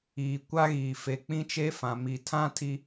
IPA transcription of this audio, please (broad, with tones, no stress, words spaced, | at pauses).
iː˨kʷa˦ɣiː˨ fe˨k͡pĩ˦t͡ʃe˦fã˨ mi˨tʰã˦tʰi˦